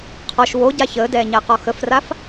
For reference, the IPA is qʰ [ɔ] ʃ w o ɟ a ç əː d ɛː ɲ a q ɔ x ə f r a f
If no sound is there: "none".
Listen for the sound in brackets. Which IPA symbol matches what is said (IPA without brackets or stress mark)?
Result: ɔ